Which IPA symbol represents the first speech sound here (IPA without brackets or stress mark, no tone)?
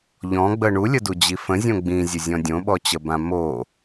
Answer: ʎ